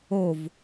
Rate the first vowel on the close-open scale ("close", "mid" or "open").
mid